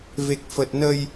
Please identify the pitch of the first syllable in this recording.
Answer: low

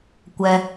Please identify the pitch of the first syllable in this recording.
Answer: high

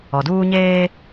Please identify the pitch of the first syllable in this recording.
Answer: low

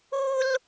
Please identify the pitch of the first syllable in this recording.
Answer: high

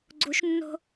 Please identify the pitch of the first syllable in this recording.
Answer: rising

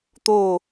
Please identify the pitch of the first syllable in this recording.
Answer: falling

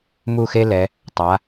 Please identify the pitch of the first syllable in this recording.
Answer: falling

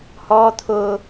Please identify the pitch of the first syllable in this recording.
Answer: high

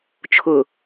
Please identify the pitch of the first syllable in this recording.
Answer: low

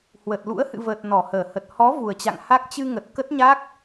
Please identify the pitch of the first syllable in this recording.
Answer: low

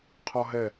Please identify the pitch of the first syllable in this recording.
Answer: high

